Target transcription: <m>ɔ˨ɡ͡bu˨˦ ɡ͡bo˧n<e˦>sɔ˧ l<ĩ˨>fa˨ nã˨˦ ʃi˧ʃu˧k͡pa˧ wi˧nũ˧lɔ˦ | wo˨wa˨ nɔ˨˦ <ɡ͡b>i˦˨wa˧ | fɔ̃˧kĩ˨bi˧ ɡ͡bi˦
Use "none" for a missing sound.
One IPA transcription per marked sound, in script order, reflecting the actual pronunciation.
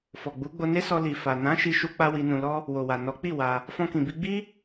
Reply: f, e˦, i˨, k͡p

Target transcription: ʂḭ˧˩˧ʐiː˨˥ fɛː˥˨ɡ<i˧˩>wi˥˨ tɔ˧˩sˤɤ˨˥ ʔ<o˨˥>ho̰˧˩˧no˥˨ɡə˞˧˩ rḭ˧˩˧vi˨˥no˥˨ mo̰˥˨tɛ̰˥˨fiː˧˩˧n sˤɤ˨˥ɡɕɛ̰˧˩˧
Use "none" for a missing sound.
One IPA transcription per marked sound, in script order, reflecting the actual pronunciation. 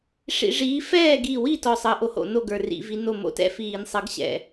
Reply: i˧˩, o˨˥

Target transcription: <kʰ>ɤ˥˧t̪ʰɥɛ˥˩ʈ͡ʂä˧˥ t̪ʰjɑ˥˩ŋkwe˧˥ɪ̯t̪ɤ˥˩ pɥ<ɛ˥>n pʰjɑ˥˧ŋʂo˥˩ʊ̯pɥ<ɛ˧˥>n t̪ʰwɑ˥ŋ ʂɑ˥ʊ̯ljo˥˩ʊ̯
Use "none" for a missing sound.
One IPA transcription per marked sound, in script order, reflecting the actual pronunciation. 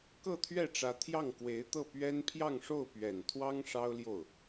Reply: k, ɛ˥, ɛ˨˩

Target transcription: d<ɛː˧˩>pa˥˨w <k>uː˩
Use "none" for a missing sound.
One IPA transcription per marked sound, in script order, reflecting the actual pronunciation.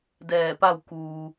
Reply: ɛː˧˩, k

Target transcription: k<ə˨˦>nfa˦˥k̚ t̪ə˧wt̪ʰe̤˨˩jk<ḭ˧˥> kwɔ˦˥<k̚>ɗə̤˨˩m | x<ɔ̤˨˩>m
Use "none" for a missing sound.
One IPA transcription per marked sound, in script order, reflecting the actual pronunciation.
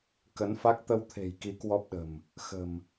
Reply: ə˨˦, i˨˦, p̚, ə̤˨˩

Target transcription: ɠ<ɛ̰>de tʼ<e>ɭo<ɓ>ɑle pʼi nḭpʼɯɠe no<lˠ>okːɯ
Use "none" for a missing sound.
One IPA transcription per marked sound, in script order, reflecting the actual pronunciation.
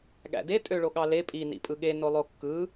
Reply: æ̰, ø, ɠ, lˠ

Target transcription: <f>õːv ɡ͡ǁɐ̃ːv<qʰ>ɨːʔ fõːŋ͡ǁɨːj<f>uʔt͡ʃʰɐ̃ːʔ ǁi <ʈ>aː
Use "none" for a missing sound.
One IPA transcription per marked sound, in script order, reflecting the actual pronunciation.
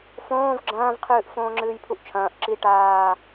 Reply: f, qʰ, pʰ, ʈ

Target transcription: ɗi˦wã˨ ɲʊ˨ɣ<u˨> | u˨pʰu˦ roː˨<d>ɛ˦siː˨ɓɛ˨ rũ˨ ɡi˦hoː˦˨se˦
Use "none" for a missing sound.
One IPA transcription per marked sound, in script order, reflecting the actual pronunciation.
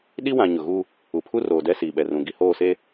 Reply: u˦, d

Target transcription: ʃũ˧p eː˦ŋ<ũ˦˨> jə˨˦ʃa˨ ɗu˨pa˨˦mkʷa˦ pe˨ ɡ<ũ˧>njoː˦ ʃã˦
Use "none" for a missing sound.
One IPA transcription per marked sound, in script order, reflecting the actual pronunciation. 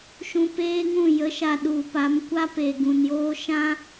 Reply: ũ˦˨, ũ˨

